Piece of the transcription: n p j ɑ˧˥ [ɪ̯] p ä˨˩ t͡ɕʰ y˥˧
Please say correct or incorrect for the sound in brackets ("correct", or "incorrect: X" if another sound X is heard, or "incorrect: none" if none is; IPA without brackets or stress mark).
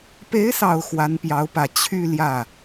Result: incorrect: ʊ̯